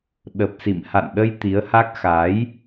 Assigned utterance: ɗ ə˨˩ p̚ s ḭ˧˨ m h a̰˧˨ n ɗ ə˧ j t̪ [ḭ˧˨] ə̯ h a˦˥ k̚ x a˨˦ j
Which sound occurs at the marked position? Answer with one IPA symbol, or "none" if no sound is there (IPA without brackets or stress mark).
i˨˦